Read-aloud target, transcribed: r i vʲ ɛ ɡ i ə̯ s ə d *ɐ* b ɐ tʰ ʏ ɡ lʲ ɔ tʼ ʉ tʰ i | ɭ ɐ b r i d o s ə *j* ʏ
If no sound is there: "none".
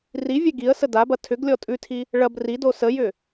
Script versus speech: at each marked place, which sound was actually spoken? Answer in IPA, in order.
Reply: a, j

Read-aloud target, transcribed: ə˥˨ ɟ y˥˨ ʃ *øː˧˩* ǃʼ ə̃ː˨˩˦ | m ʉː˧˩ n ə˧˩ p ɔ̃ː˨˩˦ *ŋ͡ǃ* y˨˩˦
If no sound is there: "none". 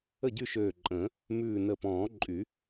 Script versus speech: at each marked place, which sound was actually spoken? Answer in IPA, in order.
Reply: øː˧˩, ǃʼ

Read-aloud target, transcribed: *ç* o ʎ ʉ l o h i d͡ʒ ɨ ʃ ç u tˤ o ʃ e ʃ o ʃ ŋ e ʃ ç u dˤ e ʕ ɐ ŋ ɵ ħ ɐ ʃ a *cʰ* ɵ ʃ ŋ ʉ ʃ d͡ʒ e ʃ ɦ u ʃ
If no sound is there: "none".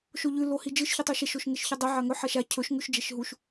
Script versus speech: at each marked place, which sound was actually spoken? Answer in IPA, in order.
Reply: ʃ, cʰ

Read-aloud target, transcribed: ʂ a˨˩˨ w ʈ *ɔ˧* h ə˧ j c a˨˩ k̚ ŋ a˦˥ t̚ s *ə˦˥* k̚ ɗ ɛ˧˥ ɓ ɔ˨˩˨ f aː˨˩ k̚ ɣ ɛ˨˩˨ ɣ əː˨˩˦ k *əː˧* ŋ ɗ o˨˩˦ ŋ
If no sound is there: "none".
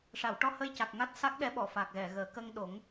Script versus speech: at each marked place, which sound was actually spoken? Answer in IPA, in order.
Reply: ɔ˧, a˦˥, əː˧

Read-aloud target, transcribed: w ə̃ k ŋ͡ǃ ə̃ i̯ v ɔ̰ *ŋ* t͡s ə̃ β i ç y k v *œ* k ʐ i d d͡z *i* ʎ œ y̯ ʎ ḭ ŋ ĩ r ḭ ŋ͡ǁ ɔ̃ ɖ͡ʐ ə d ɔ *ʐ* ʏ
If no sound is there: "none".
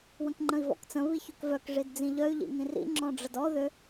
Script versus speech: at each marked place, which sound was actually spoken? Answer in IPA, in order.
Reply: k, œ, ĩ, ð

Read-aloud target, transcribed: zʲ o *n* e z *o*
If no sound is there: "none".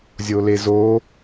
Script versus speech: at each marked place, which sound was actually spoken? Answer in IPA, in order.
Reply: l, o

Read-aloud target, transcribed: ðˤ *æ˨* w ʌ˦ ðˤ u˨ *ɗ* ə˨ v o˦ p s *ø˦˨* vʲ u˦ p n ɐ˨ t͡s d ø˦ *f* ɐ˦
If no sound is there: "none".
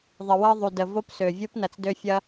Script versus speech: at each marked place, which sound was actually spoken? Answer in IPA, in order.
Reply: ə˨, d, ø˨, fʲ

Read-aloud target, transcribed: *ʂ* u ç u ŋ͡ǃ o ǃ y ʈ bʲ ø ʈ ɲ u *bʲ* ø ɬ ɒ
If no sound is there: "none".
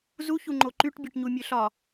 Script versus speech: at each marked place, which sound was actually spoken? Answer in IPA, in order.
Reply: z, mʲ

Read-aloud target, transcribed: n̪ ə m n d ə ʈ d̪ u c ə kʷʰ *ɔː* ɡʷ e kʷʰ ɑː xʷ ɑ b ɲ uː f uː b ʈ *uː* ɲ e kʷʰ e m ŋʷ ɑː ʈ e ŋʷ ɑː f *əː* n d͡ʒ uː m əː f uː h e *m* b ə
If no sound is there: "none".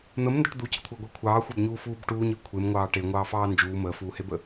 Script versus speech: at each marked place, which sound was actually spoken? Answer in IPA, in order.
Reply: əː, uː, ɑː, none

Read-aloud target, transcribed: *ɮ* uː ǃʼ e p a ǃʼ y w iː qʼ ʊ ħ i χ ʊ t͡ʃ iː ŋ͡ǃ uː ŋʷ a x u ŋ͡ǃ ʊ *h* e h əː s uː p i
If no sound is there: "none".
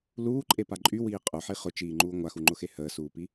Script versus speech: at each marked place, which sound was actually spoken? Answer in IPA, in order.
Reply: l, x

